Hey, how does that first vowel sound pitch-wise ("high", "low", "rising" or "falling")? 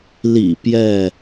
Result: low